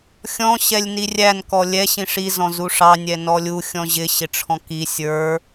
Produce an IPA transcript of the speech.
xʲ ɔ̃ ɕ ɛ lʲ n i rʲ æ n k ɔ lʲ ɛ ɕ ĩ ʂ i z ɔ̃ z u ʂ ɑ nʲ ɛ n ɔ lʲ u xʲ ɔ̃ ʑ ɪ ɕ ɪ ʈ͡ʂʰ ɔ̃ k i sʲ ə˞

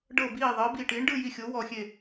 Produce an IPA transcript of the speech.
ɖ ɤ˧˩ b iː˧˩ ðˤ ɤ˨˥ b i˧˩ ʈ iː˨˥ ɳ ɖ ɯ˥˧ j i˧˩ xʲ o˨˥ w ɔ˧˩ xʲ e˧˩

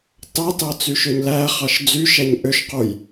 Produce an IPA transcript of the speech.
t ɑ t ɑ t͡s y ʃ ø ɲ l æ χ ɑ ʃ d͡z y ʃ æ ɲ ʔ ø ʃ q u j

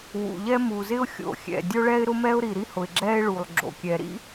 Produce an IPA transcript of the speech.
w ṵ˩ ʎ ɛ˥ m u˩ z ɪ˥ ʊ̯ xʲ o̰˩ xʲ ɛ̰˩ dʲ o˥ ɭ ɛ˥ ɪ̯ ɾ ʊ˥ m ɛ˥ ʊ̯ ɾ i˩ ɾ i˥ h ʊ˩ ɪ̯ ɡ͡ǁ ɛ˥ ɪ̯ ɭ u˩ lˠ ɡ͡ǁ o̰˩ kʲ ɛ˩ ɾ ḭ˥

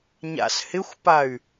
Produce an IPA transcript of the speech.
ɲ a̰ s h ɪ xʷ p a y̯

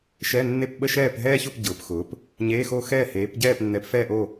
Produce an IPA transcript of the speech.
ʃ ɛ˧˥˧ nː e˥˨ p ɓ ə˥˨ ʃ ɛː˥˨ p ɦ ɛː˥ ç ʊ˥˨ p ɟ ʊː˨˥ p x ʊː˨˥ p | ɲ eː˧˥˧ x o˥˨ x ɛː˥˨ h eː˨˥ p ɟ ɛː˥˨ p nː ɛ˨˥ p f ɛ˥˨ ʔ o˥˨

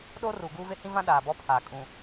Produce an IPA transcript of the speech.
ɗ oː˦ r uː˨ ɡ uː˦ v e˦ h ĩ˦ v ã˦ ɗ aː˨ b ɔ˦ pʰ aː˨ kʼ ũ˨

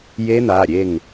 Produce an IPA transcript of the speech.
j e˦˥ n̪ a˩˧˩ ɾʲ e˥˨ ŋ

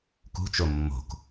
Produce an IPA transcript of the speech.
k ṳ t͡ʃ o mː o̤ k

